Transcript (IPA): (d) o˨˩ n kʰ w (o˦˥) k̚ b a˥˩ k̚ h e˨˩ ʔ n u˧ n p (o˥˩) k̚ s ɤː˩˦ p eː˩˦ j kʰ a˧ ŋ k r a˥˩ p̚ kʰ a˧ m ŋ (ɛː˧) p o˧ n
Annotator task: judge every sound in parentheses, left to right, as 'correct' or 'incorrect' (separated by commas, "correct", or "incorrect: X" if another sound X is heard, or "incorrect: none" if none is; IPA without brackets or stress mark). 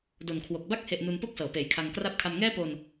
correct, incorrect: o˨˩, correct, incorrect: ɛː˥˩